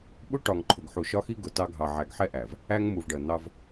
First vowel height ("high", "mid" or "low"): high